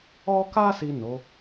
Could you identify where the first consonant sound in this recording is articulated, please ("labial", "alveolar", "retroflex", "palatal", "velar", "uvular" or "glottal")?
velar